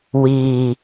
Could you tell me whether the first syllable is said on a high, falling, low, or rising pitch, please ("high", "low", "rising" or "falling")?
low